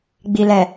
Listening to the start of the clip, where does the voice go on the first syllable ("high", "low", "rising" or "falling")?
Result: low